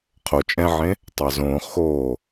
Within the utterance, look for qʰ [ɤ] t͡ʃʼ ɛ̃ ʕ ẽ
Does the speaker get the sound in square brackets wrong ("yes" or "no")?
yes